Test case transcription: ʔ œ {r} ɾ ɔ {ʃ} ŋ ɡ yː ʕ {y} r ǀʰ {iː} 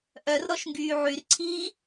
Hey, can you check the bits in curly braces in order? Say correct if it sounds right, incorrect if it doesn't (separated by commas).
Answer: correct, correct, correct, correct